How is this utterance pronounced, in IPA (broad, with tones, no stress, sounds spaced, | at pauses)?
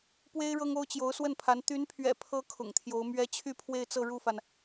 p w e˥ ɪ̯ ɻ ɤ˥ ŋ o˥ ʊ̯ t͡ɕ j o˧˥ ʊ̯ s w ə˥˩ n pʰ a˧˥ n t̪ y˧˥ n pʰ ɥ ɛ̰˨˩ pʰ ɤ˧˥ kʰ ʊ̰˨˩ ŋ t̪ʰ j o˧˥ ʊ̯ m ɥ ɛ˥ t͡ɕʰ y˥˧ pʰ w e˥˧ ɪ̯ t͡s ɤ˥˧ ɻ u˥˩ f a˩ n